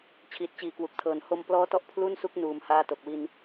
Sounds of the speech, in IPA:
t͡ɕʰ iː˨˩ t̚ t͡ɕ iː˨˩ k w u˨˩ k̚ tʰ ɤː˨˩ n h o˧ m p l ɔː˦˥ t ɔ˦˥ ʔ pʰ l u˥˩ n s u˦˥ k̚ n uː˩˦ m h aː˧ t o˨˩ k̚ w i˧ n

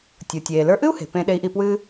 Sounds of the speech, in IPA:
tʲ u˩ tʲ eː˩ l ə˞˧ ʔ ɨ˥ u̯ h e̤˩ p ẽ˧ ɗ e˧˥ i̯ ʔ i˧ p w ɨː˥

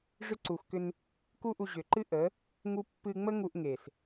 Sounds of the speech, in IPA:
ʐ ʏ˧ ǀ u˨ x k ʏ˧ n | k u˦ ʔ u˧ ʑ ʏ˨ ǃ ɨ˦ ʔ ə˨˦ | ŋ u˦ pː ɨ˧ ŋ͡m ə˦ ŋ u˧ ʔ ŋ e˨ s

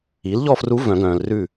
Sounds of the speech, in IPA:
i˩˥ l ʎ ɔ˥˨ f r u˧˥ v œ̃˨˩˦ ɡ œ̃ː˨ l r ʉ˥˨

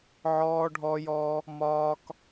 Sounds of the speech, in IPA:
ʕ ɔː˧ ɖʱ ɔ˧ j ɔ˧ | m ɒː˧ k

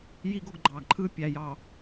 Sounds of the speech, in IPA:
j i˦ ɡ o˦ ɡ ɡ͡ǃ ɑː˨ ɡ ǃʰ ɯː˦ pʲ æ˨ j ɑ˨

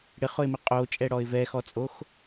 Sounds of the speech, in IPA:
ɽ ɪ χ ʊ ɪ̯ m i qʼ o t͡ʃʼ ɛ ɽ ɔ ɪ̯ v ɛ x ɔ t͡sʼ o x

